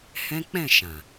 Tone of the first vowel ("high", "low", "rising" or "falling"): high